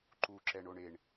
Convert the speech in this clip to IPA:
ǃuǁɛɳ oɳeɳ

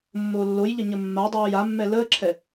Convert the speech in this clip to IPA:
mːoːlːojʎə ɲəmːadˤoːj amːɛ ləːǁʰɛ

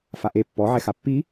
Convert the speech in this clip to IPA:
faʔe pːɔʕɛxa pːi

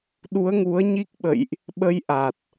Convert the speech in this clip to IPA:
ɗu˨˦ə̯ŋu˨˦ə̯ɲi˦˥k̚ɓə̰˧˨jʔ | ɓə˧jʔa˨˩t̚

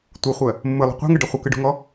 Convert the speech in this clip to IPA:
tʷɯχʷɜ | mːɯlˠṳ qʷa̤ŋɯɖɐ χʷəkɯɖṳŋɔ

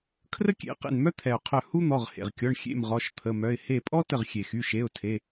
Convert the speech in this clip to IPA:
kʰrə˥kʲḛ˩˧˩ qḛ˧˩nmœ˥t̪ʰɛ˩ʊ̯ qʰœ˧˩ hu˥n̪ɔ˩˧˩ʁ hḛ˩ʁkʲɔ˩˧˩ɳ xʲḛ˧˩m ʁɔ˩˧˩ʃt̪ʰə˩˧˩mœ˩˧˩ɪ̯ he˧˩pʼɔ˥ tə˧˩ʁxʲe˩xy˩˧˩ʃe˩˧˩ʊ̯ tʰe˩˧˩

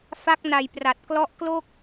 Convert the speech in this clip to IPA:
fa˦˥k̚na˨˩j pra˨˩t̚ klɔ˦˥ʔklo˥˩k̚

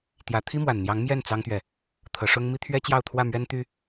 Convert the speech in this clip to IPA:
t̪jä˧˥ t̪ʰi˥mwa˨˩nn̪jɑ˧˥ŋ mjɛ˥˩n t͡sɑ˥ŋt̪ɥɛ˨ | t̪ʰɤ˧˥ʂʊ˥ŋ mi˥t̪ʰɥɛ˥ t͡ɕjɑ˥˧ʊ̯t̪ʰwä˥˩ mɥɛ˥nt̪y˥

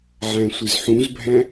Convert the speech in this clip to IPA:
ʕæ̃sʷɪzħũzbʱæ̃

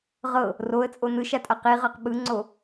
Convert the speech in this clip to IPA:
ʁɤ | roə̯t͡sʼo nɯʃatʼa qiʁɤq ɓɯŋ͡ǀo

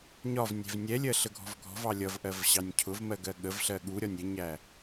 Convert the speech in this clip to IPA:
ɲɒv nʲɛ̤vnʲɛlʲɜ ɬəɡʱɔ̤vɡʱɔ̤vɑ lʲʌvʔɜv ɕɑnʲcʰʊvmɜ ɡɜɠəvɬɜ ɠuɾʲɒnʲ ɾʲəɲæ

